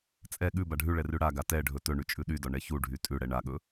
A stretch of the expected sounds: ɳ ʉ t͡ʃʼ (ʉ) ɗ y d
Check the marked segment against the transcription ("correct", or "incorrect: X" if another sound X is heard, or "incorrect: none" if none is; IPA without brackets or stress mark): correct